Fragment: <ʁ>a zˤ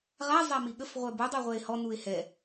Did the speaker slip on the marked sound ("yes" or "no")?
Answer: no